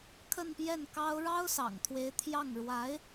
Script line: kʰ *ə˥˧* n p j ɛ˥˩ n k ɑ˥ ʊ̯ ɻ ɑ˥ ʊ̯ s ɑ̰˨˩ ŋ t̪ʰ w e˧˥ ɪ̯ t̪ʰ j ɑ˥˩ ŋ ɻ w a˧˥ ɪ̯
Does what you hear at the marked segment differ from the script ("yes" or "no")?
no